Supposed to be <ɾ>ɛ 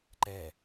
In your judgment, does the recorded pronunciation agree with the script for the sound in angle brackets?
no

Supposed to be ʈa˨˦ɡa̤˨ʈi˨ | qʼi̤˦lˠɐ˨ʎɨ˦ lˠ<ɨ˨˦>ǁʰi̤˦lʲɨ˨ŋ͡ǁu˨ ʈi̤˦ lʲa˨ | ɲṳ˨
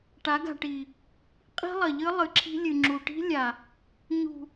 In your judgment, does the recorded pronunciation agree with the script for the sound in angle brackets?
no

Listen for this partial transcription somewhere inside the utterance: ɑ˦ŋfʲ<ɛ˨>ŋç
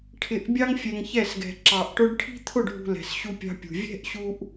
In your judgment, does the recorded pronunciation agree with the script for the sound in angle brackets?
yes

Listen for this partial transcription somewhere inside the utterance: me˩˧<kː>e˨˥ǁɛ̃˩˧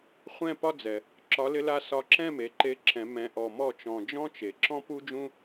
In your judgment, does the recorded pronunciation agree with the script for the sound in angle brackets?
no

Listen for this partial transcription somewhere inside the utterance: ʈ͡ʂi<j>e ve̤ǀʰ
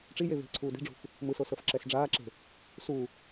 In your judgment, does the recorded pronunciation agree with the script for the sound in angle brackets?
yes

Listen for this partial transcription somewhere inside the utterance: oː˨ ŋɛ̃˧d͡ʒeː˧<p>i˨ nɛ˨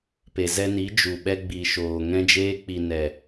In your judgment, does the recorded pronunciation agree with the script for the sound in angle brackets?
no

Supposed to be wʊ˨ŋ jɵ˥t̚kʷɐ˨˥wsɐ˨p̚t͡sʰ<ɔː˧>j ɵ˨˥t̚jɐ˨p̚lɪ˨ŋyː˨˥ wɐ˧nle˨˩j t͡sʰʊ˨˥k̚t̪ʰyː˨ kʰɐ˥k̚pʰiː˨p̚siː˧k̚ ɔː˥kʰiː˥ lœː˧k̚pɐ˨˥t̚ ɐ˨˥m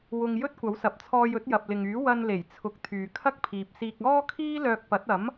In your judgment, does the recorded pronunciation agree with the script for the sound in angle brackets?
yes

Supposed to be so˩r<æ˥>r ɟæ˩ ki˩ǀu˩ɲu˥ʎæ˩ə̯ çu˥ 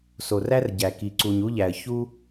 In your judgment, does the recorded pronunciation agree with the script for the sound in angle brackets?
yes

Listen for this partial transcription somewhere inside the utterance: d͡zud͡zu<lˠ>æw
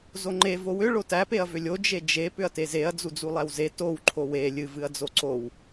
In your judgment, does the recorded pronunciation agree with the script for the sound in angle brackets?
yes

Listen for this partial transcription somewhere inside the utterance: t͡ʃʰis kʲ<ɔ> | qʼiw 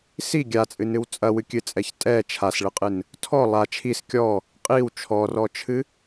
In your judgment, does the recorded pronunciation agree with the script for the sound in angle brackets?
yes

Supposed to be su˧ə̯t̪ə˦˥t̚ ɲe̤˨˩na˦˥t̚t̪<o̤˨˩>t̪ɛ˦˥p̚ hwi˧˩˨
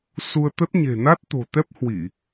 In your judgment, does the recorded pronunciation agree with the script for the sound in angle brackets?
yes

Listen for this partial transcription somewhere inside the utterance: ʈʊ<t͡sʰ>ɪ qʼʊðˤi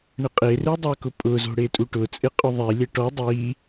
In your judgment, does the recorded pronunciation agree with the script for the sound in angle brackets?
no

